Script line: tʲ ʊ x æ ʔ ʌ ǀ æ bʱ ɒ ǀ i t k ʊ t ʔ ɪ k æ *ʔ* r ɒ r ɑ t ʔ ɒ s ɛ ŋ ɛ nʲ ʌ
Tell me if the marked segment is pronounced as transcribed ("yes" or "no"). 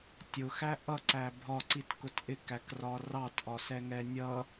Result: no